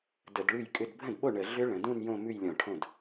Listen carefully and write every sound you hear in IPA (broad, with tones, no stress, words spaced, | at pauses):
də˧˩˧dɭʉ˥˩jkʼʏ˥˧d bʱə̃˥˩dɓo˥˩ ɳə˧˩˧ ɮʏ˦˥ ɭə̃˩˧dũ˥˧n jõ˥˧mʉ˥˧jlʲɔ̃˧˩˧ʈʰõ˥˩d